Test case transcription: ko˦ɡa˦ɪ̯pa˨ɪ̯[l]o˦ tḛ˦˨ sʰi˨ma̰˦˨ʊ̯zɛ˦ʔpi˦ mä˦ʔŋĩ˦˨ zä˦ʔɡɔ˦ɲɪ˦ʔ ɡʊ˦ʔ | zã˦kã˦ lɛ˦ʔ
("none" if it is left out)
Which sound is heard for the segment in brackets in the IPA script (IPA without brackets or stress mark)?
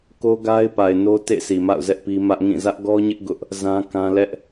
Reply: n